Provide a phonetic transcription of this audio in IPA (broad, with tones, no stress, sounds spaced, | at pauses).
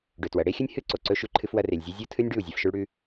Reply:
ɖ ɵ˨ t w ɐ˨ ɽ e˦ xʲ ɵ˦ nʲ h ɨ˦ ǀ o˨ ǀ ɵ˧ ʃ ʉ˧ ǃʰ ɨ˧ f w ɐ˧ r e˨ lʲ zʲ o˧ zʲ o˦ tʰ ɨ˦ nʲ ɖ ʉ˦˨ u̯ zʲ a˧ f ʃ o˦ ɭ ɽ ʉ˦